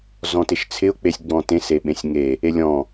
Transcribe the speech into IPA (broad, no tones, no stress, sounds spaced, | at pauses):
z ɔ̃ t ɪ ʃ t͡sʰ ɪ ʊ̯ k͡p e sʲ ɡ͡b ɔ̃ t ẽ s e ɓ ẽ sʲ ŋ e | e lʲ ɔ̃